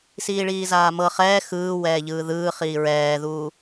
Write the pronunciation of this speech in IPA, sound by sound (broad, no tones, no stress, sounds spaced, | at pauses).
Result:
s iː ɭ iː z aː m ɤ χ ɛː x ɯː w ɛː ʎ ɯː ð ɯː χ iː ɹ ɛː ð uː